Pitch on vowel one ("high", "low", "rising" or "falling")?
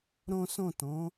high